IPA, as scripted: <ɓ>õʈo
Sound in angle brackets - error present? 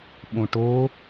no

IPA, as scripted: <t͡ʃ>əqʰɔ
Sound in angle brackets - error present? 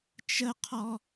no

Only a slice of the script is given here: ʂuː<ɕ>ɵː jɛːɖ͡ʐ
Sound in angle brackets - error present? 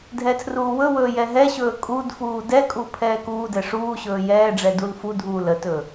no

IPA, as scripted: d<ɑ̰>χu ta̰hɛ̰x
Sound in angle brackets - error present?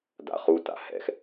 yes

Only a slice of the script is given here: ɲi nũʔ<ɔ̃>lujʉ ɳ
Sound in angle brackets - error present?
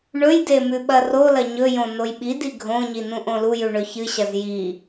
yes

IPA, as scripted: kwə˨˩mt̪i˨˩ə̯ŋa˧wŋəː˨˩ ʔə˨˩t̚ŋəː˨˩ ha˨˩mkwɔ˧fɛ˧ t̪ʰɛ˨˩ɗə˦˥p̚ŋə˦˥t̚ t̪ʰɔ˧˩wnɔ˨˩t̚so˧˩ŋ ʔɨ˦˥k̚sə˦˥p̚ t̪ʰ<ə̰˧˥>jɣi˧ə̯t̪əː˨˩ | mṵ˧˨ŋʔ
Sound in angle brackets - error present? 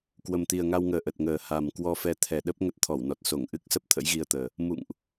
no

